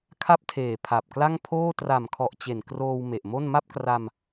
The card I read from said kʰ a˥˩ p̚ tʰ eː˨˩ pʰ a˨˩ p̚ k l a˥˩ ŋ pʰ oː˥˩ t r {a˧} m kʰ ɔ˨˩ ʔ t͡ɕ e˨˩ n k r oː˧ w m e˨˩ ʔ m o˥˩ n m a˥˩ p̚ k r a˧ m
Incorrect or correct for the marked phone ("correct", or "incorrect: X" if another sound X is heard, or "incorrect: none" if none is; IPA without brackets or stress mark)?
incorrect: a˨˩